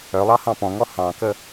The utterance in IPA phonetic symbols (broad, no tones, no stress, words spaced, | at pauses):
œlˠɑ hɑ̃pɔ̃ŋɔ hɑ̃kə